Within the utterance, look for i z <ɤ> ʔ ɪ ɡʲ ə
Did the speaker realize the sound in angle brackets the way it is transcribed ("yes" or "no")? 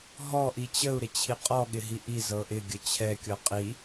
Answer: yes